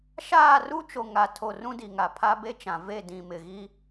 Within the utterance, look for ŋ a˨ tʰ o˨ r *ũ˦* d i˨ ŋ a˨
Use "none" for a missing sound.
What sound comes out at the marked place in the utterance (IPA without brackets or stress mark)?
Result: ũ˦